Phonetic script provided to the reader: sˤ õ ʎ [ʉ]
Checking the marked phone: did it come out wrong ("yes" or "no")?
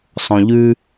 no